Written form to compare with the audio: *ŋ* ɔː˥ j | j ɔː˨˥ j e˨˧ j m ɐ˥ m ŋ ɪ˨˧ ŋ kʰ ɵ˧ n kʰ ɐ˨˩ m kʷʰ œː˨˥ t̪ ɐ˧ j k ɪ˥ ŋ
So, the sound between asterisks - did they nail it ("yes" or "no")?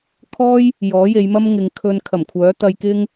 no